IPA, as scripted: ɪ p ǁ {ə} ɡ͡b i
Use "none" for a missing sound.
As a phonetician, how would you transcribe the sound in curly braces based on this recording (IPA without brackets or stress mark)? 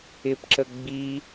ə